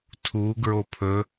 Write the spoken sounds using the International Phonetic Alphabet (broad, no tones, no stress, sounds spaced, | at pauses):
tʰ u ɡ ɹ o pʰ ɵ